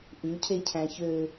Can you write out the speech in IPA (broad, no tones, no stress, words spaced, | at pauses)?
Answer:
ʔʉcʰecʰæ̃ çø